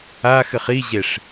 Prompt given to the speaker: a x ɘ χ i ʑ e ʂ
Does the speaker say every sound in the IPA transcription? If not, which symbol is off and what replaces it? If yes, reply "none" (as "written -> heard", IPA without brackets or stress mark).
none